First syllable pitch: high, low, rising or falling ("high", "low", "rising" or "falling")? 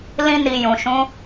high